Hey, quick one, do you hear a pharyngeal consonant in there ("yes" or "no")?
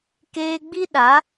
no